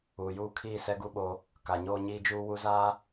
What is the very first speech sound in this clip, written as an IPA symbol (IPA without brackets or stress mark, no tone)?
uː